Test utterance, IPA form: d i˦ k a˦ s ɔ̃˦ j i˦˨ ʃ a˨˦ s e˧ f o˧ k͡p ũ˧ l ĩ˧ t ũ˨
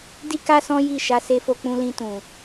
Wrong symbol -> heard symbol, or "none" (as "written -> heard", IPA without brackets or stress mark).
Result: none